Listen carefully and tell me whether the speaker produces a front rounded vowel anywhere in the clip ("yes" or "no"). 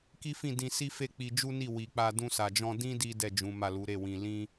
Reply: no